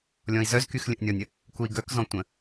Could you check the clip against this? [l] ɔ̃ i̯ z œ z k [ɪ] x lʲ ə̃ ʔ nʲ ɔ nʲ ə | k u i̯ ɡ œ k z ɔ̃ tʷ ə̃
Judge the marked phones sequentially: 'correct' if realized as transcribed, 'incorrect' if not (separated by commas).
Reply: incorrect, incorrect